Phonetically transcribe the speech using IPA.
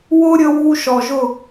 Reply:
w ʊ˦ ɾʲ ə˧ w u˧ ʃ ɔ˨ ʒ ʊ˦˨

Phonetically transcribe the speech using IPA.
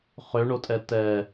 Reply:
χ ø ɳ o tʼ ɛ t ɛ

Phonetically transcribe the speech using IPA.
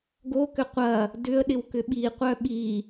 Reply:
ɡ o k ʏ qʷ ɐ | d ʏ ə̯ ɗ ɪ w k ʏ ɓ i qʷ œ ɓ i

